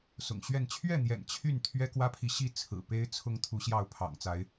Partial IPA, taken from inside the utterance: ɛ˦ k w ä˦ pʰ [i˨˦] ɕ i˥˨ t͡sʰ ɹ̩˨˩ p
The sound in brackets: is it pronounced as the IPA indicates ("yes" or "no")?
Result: no